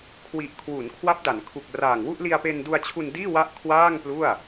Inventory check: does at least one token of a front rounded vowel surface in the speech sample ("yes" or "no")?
no